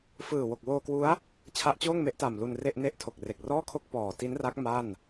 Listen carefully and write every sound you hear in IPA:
f ɯː˨˩ w o˨˩ k̚ w oː˧ k w u˦˥ a̯ | t͡ɕʰ a˦˥ ʔ t͡ɕ oː˥˩ ŋ m e˦˥ ʔ t a˨˩ m l u˧ n r e˥˩ ʔ n e˥˩ ʔ tʰ o˨˩ k̚ r e˨˩ k̚ r ɔː˥˩ kʰ o˥˩ k̚ p ɔː˨˩ t i˦˥ n r a˦˥ k̚ m a˥˩ n

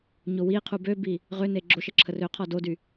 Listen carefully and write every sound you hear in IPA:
ɲ o w i qʰ u b ø b i | ʁ ø n e ɡ͡ǁ o ʃ ə ǁʰ ə r ø qʰ ɔ d o d y

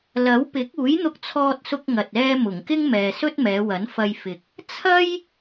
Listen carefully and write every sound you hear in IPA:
l ɐ˨˥ w p ɪ˨˥ k̚ uː˨˥ j n̪ ʊ˧ k̚ t͡sʰ ɔː˧ t̚ s ʊ˧ k̚ ŋ ɐ˨ t̚ ɛː˥ m ʊ˨˩ ŋ k ɪ˥ ŋ m ɛː˨ s ɵ˥ t̚ m ɛː˨˧ w ɐ˨˥ n f ɐ˧ j f ɪ˨ k̚ | t͡sʰ ɐ˥ j

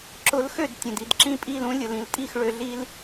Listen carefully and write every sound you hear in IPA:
ǁ ʊ˧ l x ø˥˩ d tʲ ə̃˩ d i˥˩ d ǁ ĩ˥˩ pʼ i˥˩ l ũ˥ lʲ ʊ˩ l ĩ˩ l tʼ i˥˩ x ɭ ø˧ ɮ i˥ l

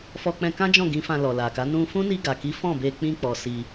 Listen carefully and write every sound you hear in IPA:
f ɔ˧ k͡p ɛ̃˧ k ã˦ d͡ʒ ɔ̃˦˨ ɡ ĩ˨˦ f ã˧ l ɔ˨ l a˨ k a˨˦ n ũ˧ f ũ˦ n i˧ ɡ a˨ k i˨˦ f ɔ̃˦˨ b e˧ k͡p ĩ˧ k͡p ɔ˨ s i˧

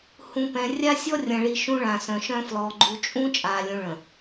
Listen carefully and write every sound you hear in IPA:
h ũ˨ p ɛ̃˨ rʲ a˦ sʲ ɔ˦ rʲ ɐ̃˨ ɭ i˨ ʃ ũ˦ ɭ ã˨ s œ̃˨ ʃ œ̃˦ f l ɔ˨ ɡ͡ǃ u˨ t͡ʃʼ ũ˦ t͡ʃʼ aː˨ lʲ ũ˨ ɭ ə̃˨

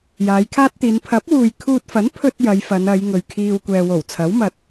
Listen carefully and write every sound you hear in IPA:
j aː˨˧ j kʰ aː˥ t̚ t̪ iː˨˧ n pʰ ɐ˨˥ p̚ w uː˨ j kʰ uː˧ t̚ f ɐ˨˥ n pʰ ɵ˥ t̚ j ɐ˨˧ j f ɐ˨˧ n ɐ˨˧ j ŋ ɵ˨ ɥ kʰ iː˧ w kʷ ɛː˨ w o˨˩ w t͡sʰ ɐ˨˥ w m ɐ˨ t̚

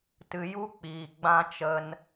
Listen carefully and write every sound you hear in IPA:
t ɨ˧ j u˦ k͡p iː˧ ɡ͡b ã˦ t͡ʃ ə˦ n

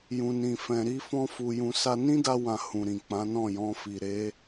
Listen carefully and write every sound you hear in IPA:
j ũ˧ n ĩ˧ f ɛ̃˧ ɾ i˦ f ɔ̃˦ f u˧ j ũ˧ s a˦ n ĩ˦ d a˧ w ã˨ h ũ˨ ɾ ĩ˨ k͡p ã˨˦ n ɔ̃˦˨ j ɔ̃˧ f i˨ ɾ e˨˦

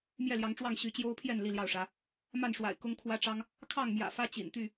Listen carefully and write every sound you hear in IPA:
m j ɛ˥˨ l j ɑ˨˦ ŋ ʈ͡ʂ w ɑ˥˨ ŋ ɕ y˨˦ t͡ɕ j o˦ ʊ̯ pʰ j ɛ˥˨ n l i˥˨ l j ɑ˥˨ ʊ̯ ʂ ä˨˦ | m a˥˨ n ʂ w a̰˨˩ ɪ̯ k ʊ˦ ŋ kʰ w ä˦ ʈ͡ʂ ɑ˦ ŋ | kʰ ɑ˥˨ ŋ m j ä̰˨˩ f ä˦ t͡ɕ ḭ˨˩ n t̪ y˥˨

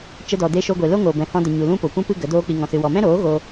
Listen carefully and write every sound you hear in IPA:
t͡ʃ ə˧ d ɔ˨ d e˧ ʃ o˧ ɡʷ e˨ l o˦ ŋ oː˨ b ɛ̃˧ h ɔ̃˦ d ə˧ ɲ u˨ l ũ˦ p o˨ kʷ ũ˦ p ɨ˦ ɡ ə˨˦ d oː˦ k͡p i˧ ŋ ɔ̃˧ s ɨ˧ w ɔ˧ m ɛ̃˦ ɾ oː˨˦ ɣ o˧

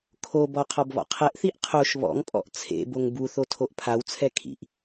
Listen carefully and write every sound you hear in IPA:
kʰ o b ɔ qʰ ɔ b β ɔ̰ qʰ ɛ ʔ θ i ʔ qʰ o ʃ β ɔ̰ ŋ pʼ ɔ̰ ʔ t͡sʰ ḛ b o ŋ b u θ o tʰ o ʔ pʰ a w t͡sʰ ɛ kʰ ḭ ʔ

